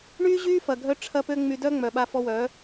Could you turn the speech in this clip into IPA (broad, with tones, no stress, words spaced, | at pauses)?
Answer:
ɳy˦ʑy˦ fɐ˧ɡʱœ˦ ʈ͡ʂʰɐ˦pø˦ ŋ͡my˧dœ˦ŋ͡mœ˨ ɓa˧fɔ˧wœ˨˦